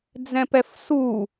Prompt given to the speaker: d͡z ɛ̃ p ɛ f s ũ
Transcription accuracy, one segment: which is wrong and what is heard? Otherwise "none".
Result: ũ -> u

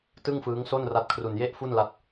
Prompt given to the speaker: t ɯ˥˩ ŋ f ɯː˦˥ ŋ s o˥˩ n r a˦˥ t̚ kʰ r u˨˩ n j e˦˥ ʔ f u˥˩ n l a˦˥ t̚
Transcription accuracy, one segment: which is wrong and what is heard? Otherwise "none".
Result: none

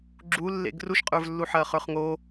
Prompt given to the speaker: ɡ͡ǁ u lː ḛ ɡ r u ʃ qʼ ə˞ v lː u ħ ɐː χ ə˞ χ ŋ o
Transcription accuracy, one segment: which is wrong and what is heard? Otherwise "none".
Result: none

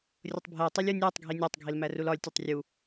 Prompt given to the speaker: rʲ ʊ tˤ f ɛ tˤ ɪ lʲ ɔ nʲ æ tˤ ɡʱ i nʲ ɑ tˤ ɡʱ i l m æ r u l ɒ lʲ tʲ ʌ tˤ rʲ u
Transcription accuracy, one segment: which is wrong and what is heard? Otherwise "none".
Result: f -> bʱ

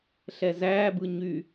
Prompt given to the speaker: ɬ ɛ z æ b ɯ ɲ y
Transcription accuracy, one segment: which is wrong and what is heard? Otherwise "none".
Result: none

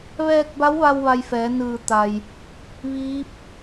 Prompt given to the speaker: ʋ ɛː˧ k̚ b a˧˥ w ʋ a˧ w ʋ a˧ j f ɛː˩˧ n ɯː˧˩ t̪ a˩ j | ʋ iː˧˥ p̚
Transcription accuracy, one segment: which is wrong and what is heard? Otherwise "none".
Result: none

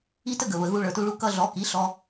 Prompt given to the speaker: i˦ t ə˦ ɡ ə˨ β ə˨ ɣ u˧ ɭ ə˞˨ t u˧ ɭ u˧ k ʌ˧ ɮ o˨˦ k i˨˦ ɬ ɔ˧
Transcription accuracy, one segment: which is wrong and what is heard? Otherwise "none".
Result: o˨˦ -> ɔ˨˦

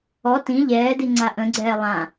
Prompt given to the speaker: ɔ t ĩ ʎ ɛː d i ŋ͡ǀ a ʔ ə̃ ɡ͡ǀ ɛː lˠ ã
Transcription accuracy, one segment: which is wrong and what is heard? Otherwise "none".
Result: none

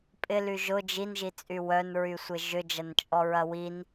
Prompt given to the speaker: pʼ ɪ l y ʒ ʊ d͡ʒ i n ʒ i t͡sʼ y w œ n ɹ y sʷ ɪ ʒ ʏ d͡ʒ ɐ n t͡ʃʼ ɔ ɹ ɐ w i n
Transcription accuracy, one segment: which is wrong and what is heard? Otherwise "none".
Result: none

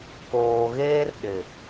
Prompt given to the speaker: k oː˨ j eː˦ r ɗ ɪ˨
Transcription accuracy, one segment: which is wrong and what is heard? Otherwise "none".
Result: j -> ɣ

